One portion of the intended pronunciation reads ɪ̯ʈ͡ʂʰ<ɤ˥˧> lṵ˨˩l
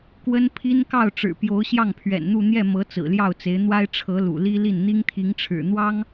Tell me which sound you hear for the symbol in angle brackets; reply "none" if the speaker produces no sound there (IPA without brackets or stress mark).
ɤ˧˥